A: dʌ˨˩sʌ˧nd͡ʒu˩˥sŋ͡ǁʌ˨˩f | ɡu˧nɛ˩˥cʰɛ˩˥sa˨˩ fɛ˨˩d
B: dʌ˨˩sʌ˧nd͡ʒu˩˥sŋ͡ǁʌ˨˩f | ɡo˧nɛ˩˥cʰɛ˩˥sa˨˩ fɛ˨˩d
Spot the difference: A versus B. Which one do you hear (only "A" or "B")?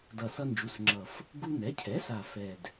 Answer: A